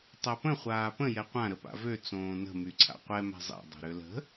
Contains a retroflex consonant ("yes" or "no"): no